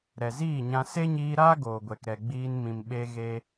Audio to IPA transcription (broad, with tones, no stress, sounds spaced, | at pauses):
ɾ ɛ˨ z iː˦˨ ɲ ã˧ s e˦ ɲ iː˧ ɾ aː˦ ɡ oː˨ ɡʷ ɛ˨ k ɾ ɛ˨ ɡ͡b iː˧ n m ĩ˨ m ɓ e˧ ɣ e˧